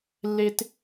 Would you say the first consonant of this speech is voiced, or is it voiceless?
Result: voiced